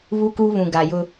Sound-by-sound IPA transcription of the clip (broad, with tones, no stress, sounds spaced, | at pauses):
β u˦ k uː˦ β ũ˨ ɡ a˨ j ʊ˦